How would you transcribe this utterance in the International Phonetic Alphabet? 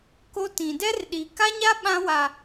k o˦ t ĩ˨ d ɛ˦ r ɗ i˨ k a˦ ɲ a˦ ɓ ã˦ w a˨

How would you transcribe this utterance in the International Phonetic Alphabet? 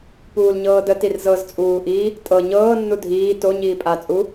p uː l ɲ ɤː d ə t i r z ɤ z t͡sʼ uː ʔ i | tʼ ɤ ɲ ɤː nː u dʱ iː t o ɲ iː pʼ a t͡sʼ u

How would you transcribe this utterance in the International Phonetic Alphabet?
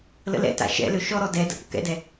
l ə̰ l ɛ̰ t a̰ ʃ ɛ̰ l ø ʃ ɔ ɾ ɔ d ɛ d ə̰ p ʊ k ɛ̰ d ɛ

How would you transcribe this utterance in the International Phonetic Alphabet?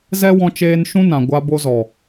z ɛ˦ w ɔ̃˧ t͡ʃ eː˧ n ʃ ũ˦ n ã˨ ɡʷ a˧ b o˧ z ɔ˨

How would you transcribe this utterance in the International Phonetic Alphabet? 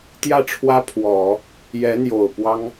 t̪ j ä˥˩ ʈ͡ʂʰ w ä˥ pʰ w ɔ˨˩˦ | j ɛ˧˥ n̪ j o˨˩ ʊ̯ p w ɑ˥ ŋ

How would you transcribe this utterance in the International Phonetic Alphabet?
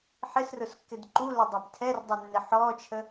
ħ ɪ s r ʊ s kː ɪ d ǃ u l ə dˤ ɛ b tʰ ɛ r dˤ ɛ nː ɪ ħ ɔ t͡ʃʰ ə

